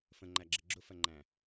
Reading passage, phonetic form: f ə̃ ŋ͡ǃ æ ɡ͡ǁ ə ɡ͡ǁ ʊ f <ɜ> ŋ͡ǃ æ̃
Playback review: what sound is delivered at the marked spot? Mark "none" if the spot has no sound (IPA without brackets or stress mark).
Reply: ɜ